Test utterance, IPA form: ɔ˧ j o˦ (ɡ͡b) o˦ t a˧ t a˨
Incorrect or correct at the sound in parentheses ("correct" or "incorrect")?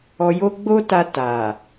correct